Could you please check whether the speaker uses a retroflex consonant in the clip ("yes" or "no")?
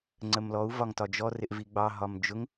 no